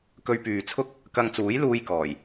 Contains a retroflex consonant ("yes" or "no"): no